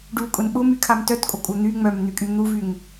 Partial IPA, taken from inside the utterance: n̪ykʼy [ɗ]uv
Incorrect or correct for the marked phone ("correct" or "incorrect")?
incorrect